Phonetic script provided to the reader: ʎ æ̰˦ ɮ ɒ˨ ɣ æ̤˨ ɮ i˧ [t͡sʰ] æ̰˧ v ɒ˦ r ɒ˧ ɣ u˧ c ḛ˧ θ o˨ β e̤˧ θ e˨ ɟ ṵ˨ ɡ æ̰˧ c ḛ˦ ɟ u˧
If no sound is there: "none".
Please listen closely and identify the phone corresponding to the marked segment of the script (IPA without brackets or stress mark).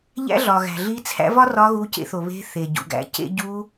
t͡sʰ